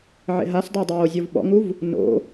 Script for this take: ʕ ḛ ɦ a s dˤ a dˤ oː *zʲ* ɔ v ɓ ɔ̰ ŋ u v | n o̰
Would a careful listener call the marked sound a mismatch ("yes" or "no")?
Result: no